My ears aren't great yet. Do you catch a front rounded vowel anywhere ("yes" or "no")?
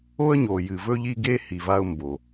no